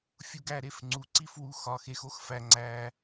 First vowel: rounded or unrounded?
rounded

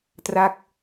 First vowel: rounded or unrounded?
unrounded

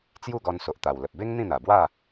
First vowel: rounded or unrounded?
rounded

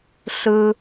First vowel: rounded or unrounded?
unrounded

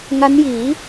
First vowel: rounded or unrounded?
unrounded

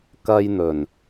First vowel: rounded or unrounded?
unrounded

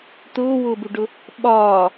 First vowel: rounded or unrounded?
rounded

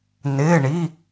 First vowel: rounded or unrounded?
unrounded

